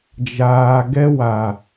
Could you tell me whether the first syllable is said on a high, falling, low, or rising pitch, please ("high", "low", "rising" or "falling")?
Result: low